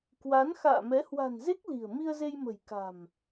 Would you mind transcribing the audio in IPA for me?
k w a˨˦ n x a̰ː˧˨ m ɛ˨˦ h w a̤˨˩ n z e˦˥ k̚ l i̤˨˩ ə̯ m i˧ ə̯ z e˧ j m ə̤˨˩ j k a̤˨˩ m

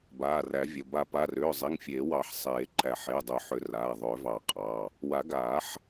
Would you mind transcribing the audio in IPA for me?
b aː˩˧˩ r æ˨˩˦ vʲ ə˩˧˩ b a˨˩˦ p a˩˧˩ r ʏː˩˧˩ zˤ i˩˧˩ ŋ fʲ eː˨˩˦ w ɑ˨˩˦ ħ sˤ eː˨˩˦ ǃ æ˨˩˦ ħ e˩˧˩ dˤ ʏ˨˩˦ ħ ʏ˨˩˦ r aː˩˧˩ ðˤ ʏː˨˩˦ v ɑ˨˩˦ qʼ ɑ˩˧˩ | w a˨˩˦ ɡ aː˨˩˦ ħ

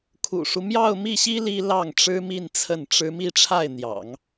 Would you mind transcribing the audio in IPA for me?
kʰ ṵ˨˩ ʂ u˦ m j ɑ˥˧ ʊ̯ m i˥˩ ɕ i˥ l i˥ l ɑ˥˩ ŋ ʈ͡ʂ ɻ̩˥ m i˥˧ n t͡sʰ ə˥˩ n ʈ͡ʂ ɻ̩˥ m i˥˧ ʈ͡ʂʰ a˥˩ ɪ̯ n̪ j ɑ̰˨˩˦ ŋ

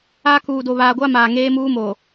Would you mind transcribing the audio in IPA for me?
a˦ k uː˨ d o˨ β aː˨ ɡʷ a˦ m aː˨ ŋ eː˦ m uː˦ m o˨

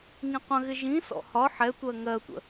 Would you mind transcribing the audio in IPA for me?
ŋ ĩ qʷ ə̃ ɣ ɪ ʒ ĩ s ɔ̰ h ɒ ħ ɛ tʷ ɜ ŋ ɜ tʷ ə̰

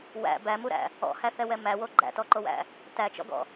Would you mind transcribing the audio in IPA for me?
w æ̰ b æ m u ɾ æ̰ | ɔ̰ h æ θ ɛ w ɛ m æ w o ɡ͡ǃ æ̰ t ɔ ǃ o w æ̰ | t æ t͡ʃ ɔ̰ ɡ ɔ̰

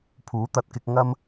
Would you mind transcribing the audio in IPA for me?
pʰ uː˨˥ t̪ ɐ˨ t̚ k ɪ˧ k̚ ŋ ɐ˧ m

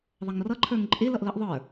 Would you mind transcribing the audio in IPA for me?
ðˤ ʌ ŋ r ʌ ǃʰ ə˞ ŋ ǃʼ ɪ l ʌ ʔ l ə ʔ ðˤ ə˞

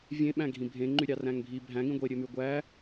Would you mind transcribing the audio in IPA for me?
vʲ ẽ ɓ æ̃ ɡʱ ĩ bʱ ẽ ŋ͡ǃ y ɾʲ ɑ r æ̃ ŋ bʱ i bʱ æ̃ ŋ ĩ ɡʷ e ɾʲ ø m y ɡʷ æ

